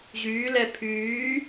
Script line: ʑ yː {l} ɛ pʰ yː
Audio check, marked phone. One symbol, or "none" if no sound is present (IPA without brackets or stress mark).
l